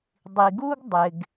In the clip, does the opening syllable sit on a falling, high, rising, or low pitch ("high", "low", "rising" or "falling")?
low